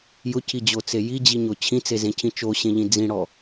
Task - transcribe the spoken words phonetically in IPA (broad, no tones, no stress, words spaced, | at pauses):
jʊcʰid͡ʑot͡se jid͡ʑiɲo t͡ɕʰĩt͡sezẽcʰĩ t͡ʃoɕẽʎĩ d͡zĩɽɔ